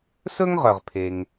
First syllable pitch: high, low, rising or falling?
high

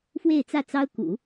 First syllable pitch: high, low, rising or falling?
falling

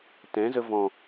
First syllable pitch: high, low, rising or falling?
rising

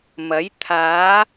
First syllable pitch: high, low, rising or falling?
rising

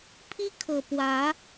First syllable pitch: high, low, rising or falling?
high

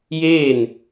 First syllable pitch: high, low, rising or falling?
falling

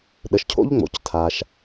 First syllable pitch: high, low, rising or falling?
low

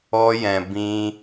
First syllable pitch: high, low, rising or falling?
high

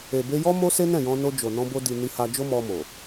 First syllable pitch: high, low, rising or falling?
low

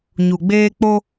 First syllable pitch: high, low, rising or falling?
low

